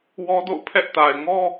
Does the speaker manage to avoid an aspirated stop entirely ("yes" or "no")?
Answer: no